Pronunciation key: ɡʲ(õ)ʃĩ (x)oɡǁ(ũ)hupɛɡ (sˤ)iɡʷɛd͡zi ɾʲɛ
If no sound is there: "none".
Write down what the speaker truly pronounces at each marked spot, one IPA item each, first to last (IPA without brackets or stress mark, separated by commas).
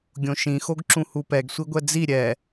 õ, x, ũ, sʷ